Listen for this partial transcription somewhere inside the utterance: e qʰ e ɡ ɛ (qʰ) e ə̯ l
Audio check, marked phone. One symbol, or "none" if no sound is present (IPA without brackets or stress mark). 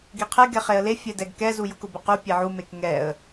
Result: χ